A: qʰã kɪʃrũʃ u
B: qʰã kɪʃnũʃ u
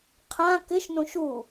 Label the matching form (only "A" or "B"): B